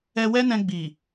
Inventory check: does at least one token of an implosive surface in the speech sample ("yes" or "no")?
no